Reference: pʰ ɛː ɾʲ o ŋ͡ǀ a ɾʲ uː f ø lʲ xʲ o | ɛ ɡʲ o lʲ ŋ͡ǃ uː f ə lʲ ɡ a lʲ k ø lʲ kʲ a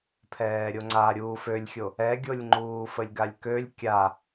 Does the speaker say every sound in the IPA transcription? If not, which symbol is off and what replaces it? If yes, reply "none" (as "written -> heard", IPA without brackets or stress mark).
none